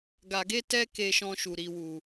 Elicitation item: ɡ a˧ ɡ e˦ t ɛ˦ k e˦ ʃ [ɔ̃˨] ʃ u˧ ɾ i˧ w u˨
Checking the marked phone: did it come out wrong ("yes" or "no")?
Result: yes